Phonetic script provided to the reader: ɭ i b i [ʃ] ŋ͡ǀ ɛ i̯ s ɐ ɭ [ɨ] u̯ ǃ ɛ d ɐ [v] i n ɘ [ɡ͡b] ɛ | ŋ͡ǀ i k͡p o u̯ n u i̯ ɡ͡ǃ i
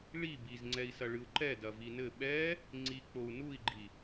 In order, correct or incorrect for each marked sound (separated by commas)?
incorrect, correct, correct, incorrect